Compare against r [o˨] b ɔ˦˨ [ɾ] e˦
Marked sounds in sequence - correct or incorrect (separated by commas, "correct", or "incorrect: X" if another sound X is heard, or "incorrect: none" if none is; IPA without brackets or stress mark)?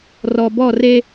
incorrect: ɔ˨, incorrect: r